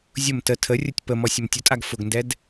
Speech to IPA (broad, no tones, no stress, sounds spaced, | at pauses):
zʲ ʊ m t ə tʰ ə rʲ ʊ tʲ p ə m ɔ sʲ ʊ m tʲ ʊ tʼ a ɡ f ʊ ɡ n d ɛ d